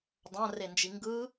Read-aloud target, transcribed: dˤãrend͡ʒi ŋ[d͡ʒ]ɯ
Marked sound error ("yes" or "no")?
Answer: yes